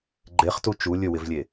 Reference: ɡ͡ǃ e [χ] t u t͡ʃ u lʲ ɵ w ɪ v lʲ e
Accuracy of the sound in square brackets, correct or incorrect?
correct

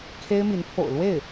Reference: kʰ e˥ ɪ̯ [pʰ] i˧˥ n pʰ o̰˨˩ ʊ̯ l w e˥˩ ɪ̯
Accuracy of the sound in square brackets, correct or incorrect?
incorrect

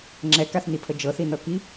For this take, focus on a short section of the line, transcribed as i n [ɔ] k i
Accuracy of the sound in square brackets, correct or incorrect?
incorrect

